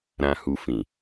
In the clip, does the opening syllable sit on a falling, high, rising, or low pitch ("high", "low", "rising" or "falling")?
low